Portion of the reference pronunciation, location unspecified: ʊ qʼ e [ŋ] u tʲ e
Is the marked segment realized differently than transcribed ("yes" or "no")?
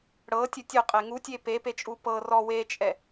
no